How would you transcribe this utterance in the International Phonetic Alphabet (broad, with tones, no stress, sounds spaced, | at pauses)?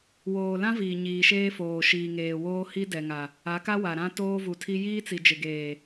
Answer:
w oː˨ l ã˦ v iː˨ ɲ iː˨ ʃ eː˦ f oː˨ ʃ iː˨ ŋ eː˨ w oː˦ h i˦ d ɛ˨ ŋ a˨ | a˨˦ k a˦ w a˨ ɾ ã˦ t oː˦ v u˨ tʰ i˦ j iː˦ t͡s i˨ d͡ʒ ɪ˨ ɡ eː˨